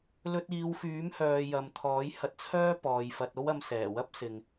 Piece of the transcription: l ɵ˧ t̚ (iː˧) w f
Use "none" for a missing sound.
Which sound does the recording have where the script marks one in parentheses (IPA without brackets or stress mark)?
iː˨˧